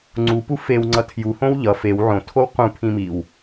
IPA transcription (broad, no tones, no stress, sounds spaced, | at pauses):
ŋ͡ǀ u p u f e w ŋ͡ǀ ʌ tʰ j u h õ w ʎ ʌ f e w ʕ õ tʰ o w q ũ pʰ ĩ m i w